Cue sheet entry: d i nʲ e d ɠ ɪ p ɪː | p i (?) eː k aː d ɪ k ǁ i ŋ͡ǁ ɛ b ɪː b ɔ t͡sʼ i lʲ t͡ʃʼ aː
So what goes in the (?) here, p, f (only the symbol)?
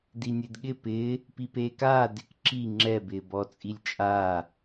p